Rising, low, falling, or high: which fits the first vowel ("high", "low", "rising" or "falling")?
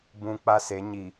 low